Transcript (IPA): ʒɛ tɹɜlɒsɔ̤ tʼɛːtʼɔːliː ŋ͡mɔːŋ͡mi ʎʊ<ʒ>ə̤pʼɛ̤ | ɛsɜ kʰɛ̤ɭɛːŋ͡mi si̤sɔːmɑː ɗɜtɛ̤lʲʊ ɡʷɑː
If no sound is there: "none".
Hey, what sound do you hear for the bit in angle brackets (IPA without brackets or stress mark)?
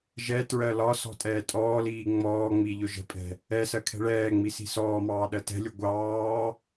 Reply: ʒ